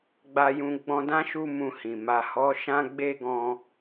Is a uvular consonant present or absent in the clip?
absent